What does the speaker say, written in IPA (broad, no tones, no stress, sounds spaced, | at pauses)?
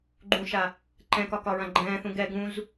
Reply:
ɡ͡ǃ ũ ʃ a | ǃ ɛ̃ k ɒ k ɒ ɹ ã ɡ͡ǃ ɛ̃ː θ ũ ɡ ɛ ɡ ũ z